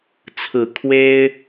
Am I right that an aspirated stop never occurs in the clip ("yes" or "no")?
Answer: no